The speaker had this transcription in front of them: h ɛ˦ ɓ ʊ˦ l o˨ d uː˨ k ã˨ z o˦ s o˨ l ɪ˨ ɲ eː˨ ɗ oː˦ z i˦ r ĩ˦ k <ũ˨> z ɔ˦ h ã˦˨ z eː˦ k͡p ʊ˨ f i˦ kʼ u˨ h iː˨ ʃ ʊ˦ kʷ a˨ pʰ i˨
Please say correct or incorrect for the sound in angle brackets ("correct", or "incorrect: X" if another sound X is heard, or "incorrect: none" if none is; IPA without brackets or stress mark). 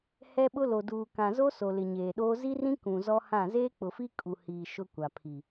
correct